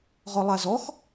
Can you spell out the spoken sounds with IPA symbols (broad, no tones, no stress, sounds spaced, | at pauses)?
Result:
ʁ ɔ lˠ a z ɔ x